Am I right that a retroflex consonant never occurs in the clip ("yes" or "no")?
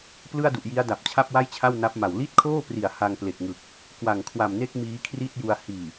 yes